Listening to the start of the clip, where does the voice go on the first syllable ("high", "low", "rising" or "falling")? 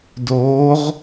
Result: rising